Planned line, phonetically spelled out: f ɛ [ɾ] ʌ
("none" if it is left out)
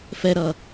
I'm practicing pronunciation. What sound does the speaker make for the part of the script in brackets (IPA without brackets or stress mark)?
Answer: ɾ